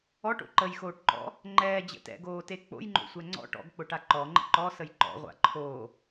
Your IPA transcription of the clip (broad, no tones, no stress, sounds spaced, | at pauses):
ɔ ʈ o̰ ǃ ə j x oː ʈ ǃ ɔ̰ | ŋ͡ǃ ɛː d͡ʑ ə̰ t ɛ̰ ɡ oː t e k͡p o̰ j ŋ͡ǃ o̰ sʷ ɛ ŋ͡ǀ ɔ̰ ʈ ɔ̰ ɡ k͡p ʊ ʈ a ǃ ɔ ŋ͡ǃ ə̰ ǃ ɔ s ə j ǃ ɔ̰ ʁʷ a̰ ǃʰ o